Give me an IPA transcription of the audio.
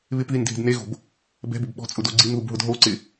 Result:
β ɪ p ð i n dʱ e̤ d n e ɣ o̤ b | b ɛ̤ b ʊ b ɓ ɔ̤ t͡sʼ ʊ d o ɡ͡ǀ i n ð u b ɦ ʊ d ɦ o ǀ ɪ

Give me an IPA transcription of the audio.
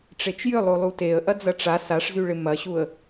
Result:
ʈ͡ʂ e t͡ʃ j ʏ lˠ o lˠ u t e ə̯ ʔ ɐ d͡z ɐ ʈ͡ʂ a s a ʂ z y ɭ ɪ m ɐ ɕ u ə̯

